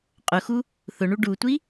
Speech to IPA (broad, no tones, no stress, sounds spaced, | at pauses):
qʼ ʊ x u | θ ʊ ɳ u ɖ u tʷ i